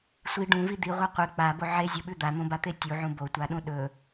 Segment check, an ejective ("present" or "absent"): absent